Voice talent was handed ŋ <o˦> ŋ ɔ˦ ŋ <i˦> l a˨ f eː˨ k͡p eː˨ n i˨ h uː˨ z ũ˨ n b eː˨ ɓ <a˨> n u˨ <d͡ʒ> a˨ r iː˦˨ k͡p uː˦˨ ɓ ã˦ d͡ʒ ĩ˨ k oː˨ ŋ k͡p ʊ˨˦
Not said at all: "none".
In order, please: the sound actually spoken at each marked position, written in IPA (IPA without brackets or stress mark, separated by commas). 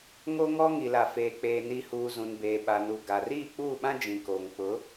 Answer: o˦, i˨, a˨, ɡ